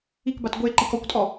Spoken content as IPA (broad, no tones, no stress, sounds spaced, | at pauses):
i k b a t ɡʷ e ǃ i k ɔ kʷ tʼ ɔ